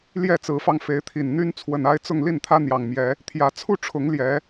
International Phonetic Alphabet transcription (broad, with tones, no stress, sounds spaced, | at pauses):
l j ɛ˥˨ t͡s ɹ̩˨˦ f ɑ˧ ŋ f e˨˦ ɪ̯ t̪ʰ i˨˩ n n̪ y˦ n t͡sʰ w ə˨˩ n a˦ ɪ̯ t͡s ʊ˥˨ ŋ l i˥˨ n t̪ʰ ä˦ n̪ j ɑ˨˩ ŋ m j ɛ˨˦ | t̪ʰ j ä˨˩ t͡sʰ u˥˨ ʈ͡ʂʰ ʊ˨˦ ŋ l j ɛ˨˦